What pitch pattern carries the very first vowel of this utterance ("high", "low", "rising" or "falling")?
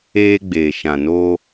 high